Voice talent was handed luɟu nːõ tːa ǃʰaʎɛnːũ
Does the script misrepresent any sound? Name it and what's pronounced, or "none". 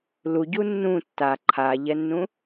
õ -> ũ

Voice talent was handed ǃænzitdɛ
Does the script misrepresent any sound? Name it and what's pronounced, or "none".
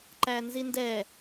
t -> n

